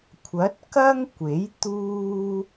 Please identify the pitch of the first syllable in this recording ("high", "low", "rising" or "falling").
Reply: rising